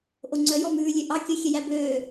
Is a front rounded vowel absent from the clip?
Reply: no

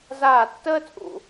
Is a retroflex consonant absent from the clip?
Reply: yes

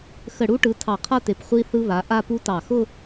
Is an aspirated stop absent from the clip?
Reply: no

